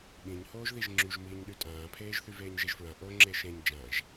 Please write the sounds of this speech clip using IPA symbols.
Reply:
ɓĩɲhoːʒ ðiʒŋ͡ǁyʒ miɲ ɗytʼãːpʰeːʒθy veːɲʒeʒfɹã ʔo ŋ͡ǁeʃẽɲ d͡ʒãʒ

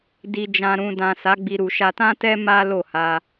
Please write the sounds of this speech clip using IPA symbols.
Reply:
di˨d͡ʒã˨ɾũ˨dã˨ sa˨˦ɡ͡bi˧ ɾu˨ʃa˧tã˦tɛ˦ ma˦lo˦˨ ha˧

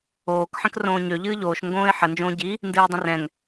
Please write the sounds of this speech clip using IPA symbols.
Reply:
oːk ħə̃krõːɲø ʎɨːʎoːʃ ŋɡõːɪ̯ħə nd͡ʒõːɟi | ndɨːdˤə̃rɛ̃ŋ

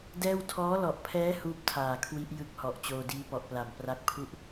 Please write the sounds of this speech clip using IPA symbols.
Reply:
dɛː˥˩w tʰɔː˦˥lɔ˨˩ʔpʰɛː˦˥ huː˥˩p̚tʰaː˨˩kʰwi˦˥ʔ jɯ˦˥k̚hɔ˨˩ʔ t͡ɕoː˧diː˦˥pɔ˨˩ʔpla˨˩m pra˦˥k̚pʰu˥˩ʔ

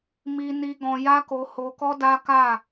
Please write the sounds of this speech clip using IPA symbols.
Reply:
mi˧ni˧ ɡɔ̃˧ja˦ko˧ ho˧kɔ˦ da˦ka˦˨

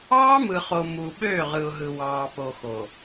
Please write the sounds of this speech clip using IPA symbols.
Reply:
ɑː˦mɯ˨χo˨ mu˨ ɓøː˦˨ʁɯ˨ʊ̯ɦɯ˨ wɑː˨po˨ xo˨

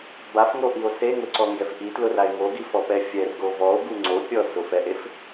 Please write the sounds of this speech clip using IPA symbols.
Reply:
bafŋoʔio̯ seŋʊǀɔŋɡɛf ʔitlʊrae̯ ŋoɡifɔpɛ fʲɛrɡo vɔo̯ɡu ŋ͡ǀo pʲɔsʊfɛʔef

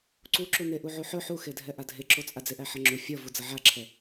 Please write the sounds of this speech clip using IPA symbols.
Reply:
ǀuǁu neʔuʕuħɵ ħuxedʱɛʔa dʱeǁot͡sʼa d͡zeʔæħʌŋ͡ǁu fʲʌvu d͡zʌʕaǁʰɛ

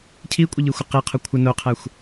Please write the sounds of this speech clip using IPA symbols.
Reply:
cʰikʷʼəʎixʷə qiqʰo kʷʰə noqʰæxʷ

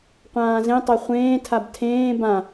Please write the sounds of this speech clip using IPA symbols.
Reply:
qʷãːzẽtˤe χʷẽːtʰab tʰẽː bã

